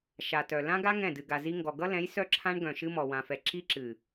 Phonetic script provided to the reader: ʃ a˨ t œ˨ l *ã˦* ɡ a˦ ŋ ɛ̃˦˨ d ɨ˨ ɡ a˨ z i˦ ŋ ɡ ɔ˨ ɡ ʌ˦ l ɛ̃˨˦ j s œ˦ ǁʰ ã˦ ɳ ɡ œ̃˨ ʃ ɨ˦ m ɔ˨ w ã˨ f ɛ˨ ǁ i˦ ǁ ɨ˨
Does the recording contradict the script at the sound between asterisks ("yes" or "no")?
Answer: no